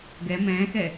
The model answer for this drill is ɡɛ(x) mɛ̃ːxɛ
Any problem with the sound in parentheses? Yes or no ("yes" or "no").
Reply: yes